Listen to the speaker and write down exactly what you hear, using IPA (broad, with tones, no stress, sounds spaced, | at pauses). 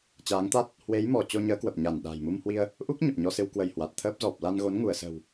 t͡ɕ aː˨˦ ŋ t̪ a˦˥ t̚ | h w e˨˦ j m ɔ˧˩ t͡ɕ o˧ ɲ əː˨˦ k w ə˨˩ p̚ ɲ a˧˩ n ɗ a̤˨˩ j m u˧ m h w i˧ ə̯ | ʔ u˦˥ k̚ ɲ ə˨˩ p̚ ɲ ɔ˧ s ɨ˧ w k w ə˧˩ j h w a˨˩ t̚ t̪ʰ əː˦˥ p̚ z ɔ˨˩ p̚ l a˧ n ɣ o˨˦ n ŋ u˧˩ ə̯ s ə̤˨˩ w